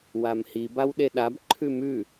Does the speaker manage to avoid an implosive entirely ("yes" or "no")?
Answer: no